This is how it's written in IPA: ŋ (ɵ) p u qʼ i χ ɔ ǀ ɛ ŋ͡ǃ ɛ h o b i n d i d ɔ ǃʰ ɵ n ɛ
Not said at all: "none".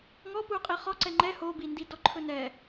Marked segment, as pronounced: ɔ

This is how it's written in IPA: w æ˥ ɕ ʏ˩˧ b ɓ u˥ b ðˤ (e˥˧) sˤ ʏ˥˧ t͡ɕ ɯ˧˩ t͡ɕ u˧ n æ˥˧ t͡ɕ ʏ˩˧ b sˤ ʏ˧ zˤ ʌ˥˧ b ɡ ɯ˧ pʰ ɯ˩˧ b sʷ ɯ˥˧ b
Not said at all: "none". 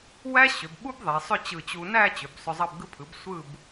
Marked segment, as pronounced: e˩˧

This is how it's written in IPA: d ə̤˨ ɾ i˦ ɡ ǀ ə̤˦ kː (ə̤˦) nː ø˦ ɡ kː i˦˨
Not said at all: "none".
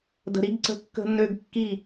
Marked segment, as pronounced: ə̤˦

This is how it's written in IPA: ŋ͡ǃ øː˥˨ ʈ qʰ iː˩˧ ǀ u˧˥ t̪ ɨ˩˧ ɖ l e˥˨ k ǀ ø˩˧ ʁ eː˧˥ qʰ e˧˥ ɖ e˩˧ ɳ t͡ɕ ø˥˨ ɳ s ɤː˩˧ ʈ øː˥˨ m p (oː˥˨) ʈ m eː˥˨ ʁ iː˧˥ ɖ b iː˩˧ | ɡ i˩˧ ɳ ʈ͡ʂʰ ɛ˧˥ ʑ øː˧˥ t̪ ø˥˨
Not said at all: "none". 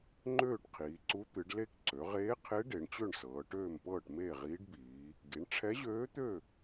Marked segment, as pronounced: ɤː˥˨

